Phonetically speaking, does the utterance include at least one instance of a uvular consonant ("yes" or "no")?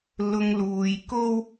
no